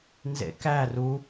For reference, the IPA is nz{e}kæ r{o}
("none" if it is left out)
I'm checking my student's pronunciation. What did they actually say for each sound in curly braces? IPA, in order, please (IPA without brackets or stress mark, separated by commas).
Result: ḛ, u